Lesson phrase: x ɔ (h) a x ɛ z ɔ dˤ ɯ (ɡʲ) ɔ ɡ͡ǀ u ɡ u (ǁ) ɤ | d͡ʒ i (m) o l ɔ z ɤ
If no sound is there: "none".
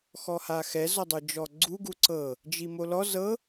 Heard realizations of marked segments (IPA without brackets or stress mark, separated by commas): h, d͡ʒ, ǀ, m